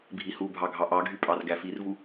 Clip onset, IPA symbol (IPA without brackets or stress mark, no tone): bʱ